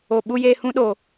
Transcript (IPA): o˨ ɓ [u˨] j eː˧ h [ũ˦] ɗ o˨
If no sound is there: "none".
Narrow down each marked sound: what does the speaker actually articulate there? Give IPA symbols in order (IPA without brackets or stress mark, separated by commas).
u˧, ũ˦